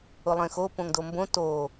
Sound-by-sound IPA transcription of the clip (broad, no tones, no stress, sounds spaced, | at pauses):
ʊ lˠ ẽ x o p õ ŋ d o m b õ t o